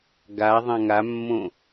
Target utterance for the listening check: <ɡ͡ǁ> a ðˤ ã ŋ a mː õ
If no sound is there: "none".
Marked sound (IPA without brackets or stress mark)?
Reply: ɡ